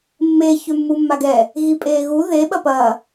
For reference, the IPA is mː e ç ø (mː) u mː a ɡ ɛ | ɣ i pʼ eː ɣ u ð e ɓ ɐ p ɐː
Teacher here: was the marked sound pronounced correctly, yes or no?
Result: yes